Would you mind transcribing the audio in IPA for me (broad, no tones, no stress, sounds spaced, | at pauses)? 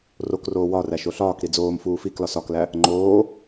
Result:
r o k r oː w ɒ r æ ʃ o ɬ ɒː k ɾ i d͡z oː m f uː f i k l ɒ s ɒ k l æ | ŋ͡ǃ oː